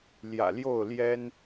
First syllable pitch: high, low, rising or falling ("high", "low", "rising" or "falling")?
low